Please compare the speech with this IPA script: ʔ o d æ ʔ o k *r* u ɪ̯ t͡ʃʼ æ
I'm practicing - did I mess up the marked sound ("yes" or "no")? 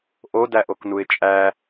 yes